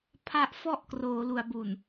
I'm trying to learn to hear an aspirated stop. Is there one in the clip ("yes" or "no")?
yes